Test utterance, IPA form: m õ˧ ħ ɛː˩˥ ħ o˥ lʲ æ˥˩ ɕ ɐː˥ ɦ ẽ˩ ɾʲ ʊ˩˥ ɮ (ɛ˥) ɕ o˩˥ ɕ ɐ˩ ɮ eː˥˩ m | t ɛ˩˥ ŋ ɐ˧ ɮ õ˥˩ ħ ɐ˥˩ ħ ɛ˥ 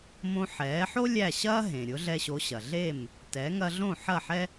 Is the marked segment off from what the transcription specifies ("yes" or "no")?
yes